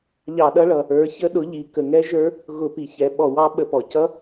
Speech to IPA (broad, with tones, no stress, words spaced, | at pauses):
ʎɑ˧˩˧ɗʌ˦˥ɭʌ˩˧ | ə˞˩˥çə˦˥ɗʊ˩˥ʎi˩˧ kə˩˧ŋɛ˦˥ʒə˞˦˥ | ɣʊ˧˩˧pi˩˧ çɛ˩˧ɓɔ˧˩˧wɑ˦˥ ɓə˧˩˧pɔ˩˧ cʌ˦˥